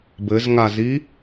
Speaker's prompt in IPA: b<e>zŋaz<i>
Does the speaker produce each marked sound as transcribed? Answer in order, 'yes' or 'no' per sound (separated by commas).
no, yes